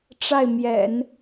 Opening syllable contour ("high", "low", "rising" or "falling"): falling